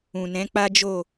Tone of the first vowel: low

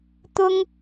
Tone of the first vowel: high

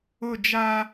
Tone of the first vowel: falling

